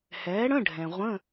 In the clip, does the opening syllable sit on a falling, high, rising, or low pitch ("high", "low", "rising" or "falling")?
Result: rising